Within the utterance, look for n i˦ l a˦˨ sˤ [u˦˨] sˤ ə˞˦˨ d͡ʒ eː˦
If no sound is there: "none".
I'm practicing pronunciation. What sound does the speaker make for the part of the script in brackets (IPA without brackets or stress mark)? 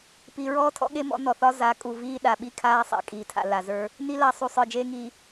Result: u˦˨